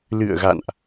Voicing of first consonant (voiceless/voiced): voiced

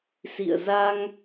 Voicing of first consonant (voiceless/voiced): voiceless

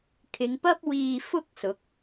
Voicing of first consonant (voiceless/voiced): voiceless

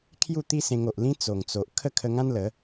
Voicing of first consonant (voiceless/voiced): voiceless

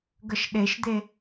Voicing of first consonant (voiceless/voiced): voiced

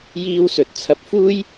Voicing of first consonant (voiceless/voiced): voiced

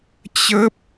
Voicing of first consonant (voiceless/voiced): voiceless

